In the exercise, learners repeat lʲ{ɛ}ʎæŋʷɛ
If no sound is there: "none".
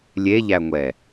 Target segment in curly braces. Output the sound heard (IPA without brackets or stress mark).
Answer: e